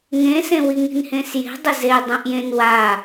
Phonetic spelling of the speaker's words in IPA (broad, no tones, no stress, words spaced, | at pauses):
ŋẽsẽ wiŋi̤nhẽsje̤ dˤɪze dˤũʔjẽn wa